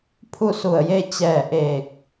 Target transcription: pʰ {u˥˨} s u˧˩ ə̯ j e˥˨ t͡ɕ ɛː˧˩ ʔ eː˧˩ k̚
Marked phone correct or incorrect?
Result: correct